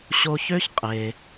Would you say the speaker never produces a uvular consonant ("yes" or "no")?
no